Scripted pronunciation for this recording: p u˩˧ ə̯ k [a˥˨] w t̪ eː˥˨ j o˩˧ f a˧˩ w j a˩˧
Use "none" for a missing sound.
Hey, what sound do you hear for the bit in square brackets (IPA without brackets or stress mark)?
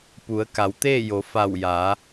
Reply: a˩˧